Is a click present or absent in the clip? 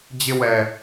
absent